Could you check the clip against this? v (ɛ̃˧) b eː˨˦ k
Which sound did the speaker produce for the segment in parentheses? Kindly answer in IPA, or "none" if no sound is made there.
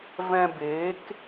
ɛ̃˧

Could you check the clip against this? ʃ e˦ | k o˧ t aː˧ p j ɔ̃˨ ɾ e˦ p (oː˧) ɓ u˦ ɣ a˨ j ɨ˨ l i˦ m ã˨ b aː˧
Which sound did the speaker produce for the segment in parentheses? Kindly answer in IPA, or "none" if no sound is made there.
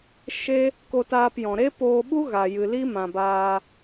oː˧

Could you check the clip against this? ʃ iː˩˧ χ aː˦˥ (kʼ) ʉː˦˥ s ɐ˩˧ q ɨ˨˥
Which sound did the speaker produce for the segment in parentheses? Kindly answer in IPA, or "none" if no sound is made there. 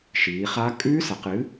kʼ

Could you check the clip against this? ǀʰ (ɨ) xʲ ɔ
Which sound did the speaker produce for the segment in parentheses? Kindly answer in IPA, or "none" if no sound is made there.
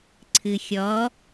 ɨ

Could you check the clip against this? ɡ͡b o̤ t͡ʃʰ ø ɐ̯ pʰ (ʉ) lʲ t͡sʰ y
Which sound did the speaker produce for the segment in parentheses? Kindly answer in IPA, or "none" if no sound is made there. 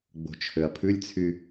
ʉ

